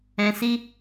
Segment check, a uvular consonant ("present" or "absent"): absent